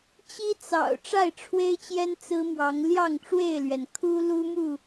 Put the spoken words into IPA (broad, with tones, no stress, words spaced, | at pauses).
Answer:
t͡ɕi˦t͡sɑ̰˨˩ʊ̯ ʈ͡ʂa˥˨ɪ̯ʈ͡ʂʰwe˦ɪ̯t͡ɕjɛ˦n t͡sɹ̩˦mwɑ˨˦ŋ ljɑ˥˨ŋʈ͡ʂwe˥˨ɪ̯lɥɛ˩n kʰu˦ lu˦mu˥˨